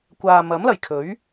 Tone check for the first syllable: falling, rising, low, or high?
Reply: low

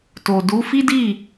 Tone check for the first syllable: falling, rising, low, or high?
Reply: low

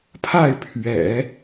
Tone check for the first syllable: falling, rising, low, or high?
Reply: falling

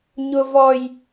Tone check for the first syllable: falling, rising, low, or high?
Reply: high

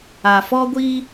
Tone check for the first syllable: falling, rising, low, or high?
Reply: low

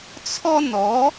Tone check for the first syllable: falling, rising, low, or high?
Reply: high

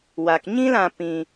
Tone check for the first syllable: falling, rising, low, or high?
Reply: low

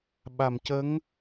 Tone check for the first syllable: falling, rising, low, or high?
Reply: low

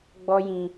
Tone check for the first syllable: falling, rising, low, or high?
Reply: high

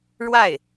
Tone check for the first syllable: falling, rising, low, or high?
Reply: falling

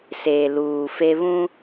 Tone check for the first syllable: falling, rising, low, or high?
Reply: low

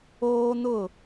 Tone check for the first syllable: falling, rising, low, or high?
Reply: high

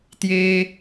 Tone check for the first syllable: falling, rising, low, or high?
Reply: low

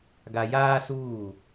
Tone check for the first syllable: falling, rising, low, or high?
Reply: high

